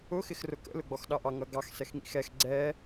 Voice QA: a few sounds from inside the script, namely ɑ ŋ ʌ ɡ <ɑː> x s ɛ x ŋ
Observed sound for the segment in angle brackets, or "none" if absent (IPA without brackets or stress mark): ɑ